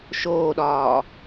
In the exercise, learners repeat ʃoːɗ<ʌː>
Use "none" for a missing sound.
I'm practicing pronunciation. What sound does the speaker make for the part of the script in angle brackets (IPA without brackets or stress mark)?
ɒː